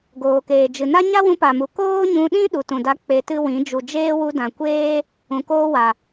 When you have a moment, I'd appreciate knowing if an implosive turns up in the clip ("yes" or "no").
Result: yes